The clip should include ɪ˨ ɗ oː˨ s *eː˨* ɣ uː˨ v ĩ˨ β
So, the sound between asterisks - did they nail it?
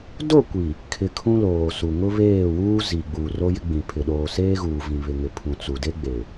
no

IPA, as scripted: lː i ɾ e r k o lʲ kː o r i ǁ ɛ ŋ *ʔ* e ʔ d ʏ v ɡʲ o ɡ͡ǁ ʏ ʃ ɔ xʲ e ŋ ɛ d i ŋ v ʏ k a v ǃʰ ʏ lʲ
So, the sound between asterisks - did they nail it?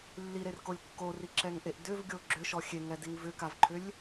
yes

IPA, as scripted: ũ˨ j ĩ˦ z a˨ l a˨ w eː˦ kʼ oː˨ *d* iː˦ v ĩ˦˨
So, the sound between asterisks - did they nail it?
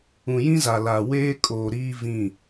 no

